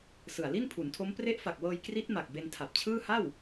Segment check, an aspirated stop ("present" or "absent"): present